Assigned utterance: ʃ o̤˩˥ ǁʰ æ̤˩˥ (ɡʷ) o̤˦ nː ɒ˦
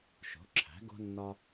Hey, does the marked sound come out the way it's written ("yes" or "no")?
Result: no